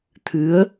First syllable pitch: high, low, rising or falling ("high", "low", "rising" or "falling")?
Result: rising